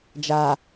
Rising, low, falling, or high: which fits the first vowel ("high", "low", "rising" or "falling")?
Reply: low